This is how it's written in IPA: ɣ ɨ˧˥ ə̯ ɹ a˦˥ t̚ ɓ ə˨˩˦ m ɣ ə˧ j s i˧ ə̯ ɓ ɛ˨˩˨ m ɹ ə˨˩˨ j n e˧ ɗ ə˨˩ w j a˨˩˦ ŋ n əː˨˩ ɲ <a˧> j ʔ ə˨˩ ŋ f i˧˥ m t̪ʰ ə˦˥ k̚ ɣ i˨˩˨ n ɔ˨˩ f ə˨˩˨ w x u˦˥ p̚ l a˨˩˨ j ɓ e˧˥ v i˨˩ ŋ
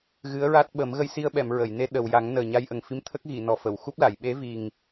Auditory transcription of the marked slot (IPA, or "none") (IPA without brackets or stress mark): a˧